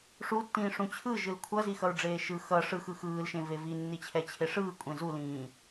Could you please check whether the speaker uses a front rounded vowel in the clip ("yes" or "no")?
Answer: no